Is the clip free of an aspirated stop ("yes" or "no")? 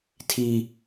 no